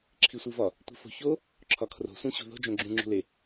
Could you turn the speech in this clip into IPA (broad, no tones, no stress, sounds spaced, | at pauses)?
ǁʰ i sʷ i v ɒ | tʷ i̤ f o̤ ç o | ǁʰ ɒ kʰ r o̤ sʷ ẽ ɕ ṳ ð o̤ d͡ʒ õ ɡ͡ǁ ũ ŋ͡ǁ ṳ l e